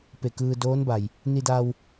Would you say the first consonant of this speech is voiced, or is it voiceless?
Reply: voiceless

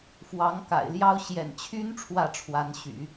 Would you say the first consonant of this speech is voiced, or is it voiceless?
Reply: voiceless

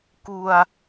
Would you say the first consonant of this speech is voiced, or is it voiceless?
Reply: voiceless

